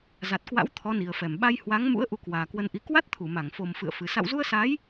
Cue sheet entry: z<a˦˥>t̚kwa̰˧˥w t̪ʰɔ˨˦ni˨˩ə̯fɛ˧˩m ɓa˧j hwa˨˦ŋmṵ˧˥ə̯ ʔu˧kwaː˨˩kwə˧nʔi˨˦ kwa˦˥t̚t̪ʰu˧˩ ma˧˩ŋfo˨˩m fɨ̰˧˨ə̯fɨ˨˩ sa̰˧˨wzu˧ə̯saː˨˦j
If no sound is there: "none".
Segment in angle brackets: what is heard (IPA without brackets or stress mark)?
a˨˩